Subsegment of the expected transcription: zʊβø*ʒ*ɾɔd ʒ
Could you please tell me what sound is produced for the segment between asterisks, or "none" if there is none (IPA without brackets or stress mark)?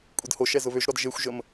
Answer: ʒ